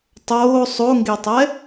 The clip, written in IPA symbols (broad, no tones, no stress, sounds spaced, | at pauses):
tˤ oː sˤ o ŋ ɡ e tˤ ɛ